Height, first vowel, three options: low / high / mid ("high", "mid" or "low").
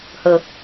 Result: mid